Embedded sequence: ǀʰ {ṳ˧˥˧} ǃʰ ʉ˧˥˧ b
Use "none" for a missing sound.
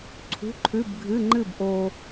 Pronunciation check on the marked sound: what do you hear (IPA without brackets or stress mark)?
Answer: ṳ˧˥˧